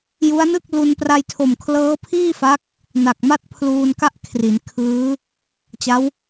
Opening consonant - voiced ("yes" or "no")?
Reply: yes